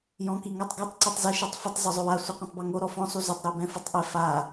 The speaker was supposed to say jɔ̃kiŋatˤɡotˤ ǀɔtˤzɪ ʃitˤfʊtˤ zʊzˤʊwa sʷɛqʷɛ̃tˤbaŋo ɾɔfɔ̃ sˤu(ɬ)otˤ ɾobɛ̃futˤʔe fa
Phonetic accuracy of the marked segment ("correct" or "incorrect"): incorrect